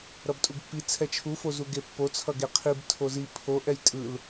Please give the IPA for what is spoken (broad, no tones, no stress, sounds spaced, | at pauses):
ɾ ʌ b tʼ u ɡ pː i t͡sʰ ɛ t͡ʃʰ u f o z u ɡ e pː o t͡sʰ ʌ ɡ e qʰ i b tʰ o z i pʰ o ʔ ɛ j tʼ ɯ l